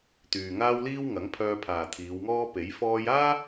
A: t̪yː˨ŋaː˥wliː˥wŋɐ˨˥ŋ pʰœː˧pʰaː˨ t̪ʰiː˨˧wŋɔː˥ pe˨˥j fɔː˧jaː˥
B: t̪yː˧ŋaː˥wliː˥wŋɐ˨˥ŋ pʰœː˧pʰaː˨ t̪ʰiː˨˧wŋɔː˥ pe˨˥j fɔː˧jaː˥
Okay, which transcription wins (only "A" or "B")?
A